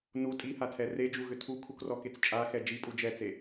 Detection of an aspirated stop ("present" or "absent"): present